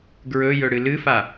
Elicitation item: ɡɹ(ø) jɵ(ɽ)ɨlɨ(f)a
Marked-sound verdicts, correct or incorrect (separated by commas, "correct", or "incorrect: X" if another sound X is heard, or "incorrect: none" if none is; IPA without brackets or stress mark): incorrect: ɵ, correct, correct